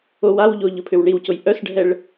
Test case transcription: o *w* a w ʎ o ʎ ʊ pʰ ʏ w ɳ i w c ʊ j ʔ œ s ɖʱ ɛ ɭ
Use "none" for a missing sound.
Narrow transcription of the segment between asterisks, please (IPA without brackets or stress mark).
w